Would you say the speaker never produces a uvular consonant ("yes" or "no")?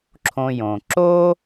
yes